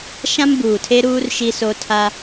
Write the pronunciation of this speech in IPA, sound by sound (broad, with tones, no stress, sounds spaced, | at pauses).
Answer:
ʃ ã˦ m b uː˨ tʰ e˦ ɾ uː˦ r ʃ i˦ s o˦ tʰ a˦